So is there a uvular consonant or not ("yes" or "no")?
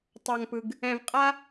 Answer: yes